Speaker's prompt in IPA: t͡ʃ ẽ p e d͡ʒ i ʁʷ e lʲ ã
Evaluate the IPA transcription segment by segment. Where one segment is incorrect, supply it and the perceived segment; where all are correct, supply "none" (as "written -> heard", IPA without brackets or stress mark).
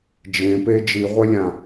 t͡ʃ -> d͡ʒ